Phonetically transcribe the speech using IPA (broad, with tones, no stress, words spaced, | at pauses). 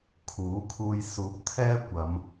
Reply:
kʰuː˨˥kʰuː˧j suː˨˥p̚ t̪ʰɛː˥kʷɐ˨˧m